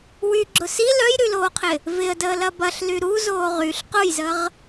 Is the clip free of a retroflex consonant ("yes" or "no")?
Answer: yes